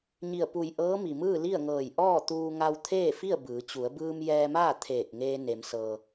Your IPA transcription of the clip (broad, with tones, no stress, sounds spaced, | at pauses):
ɲ i˧˩ ə̯ p u˧˩ j ʔ ɤː˧˥ m i˩ m ɯː˥˨ l i˥˨ ə̯ ŋ ɤː˧˩ j ʔ ɔː˥˨ t̪ uː˧ ŋ a˧ w t̪ʰ eː˥˨ f i˥˨ ə̯ b ɯː˩˧ t͡ɕ u˩˧ ə̯ b ɯː˧ m j ɛː˧ m aː˥˨ t̪ʰ eː˧˩ k̚ ŋ eː˧ n e˩˧ m s ɤː˩